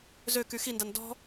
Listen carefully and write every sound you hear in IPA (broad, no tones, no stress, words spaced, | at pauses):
zøky xindan dɔ̤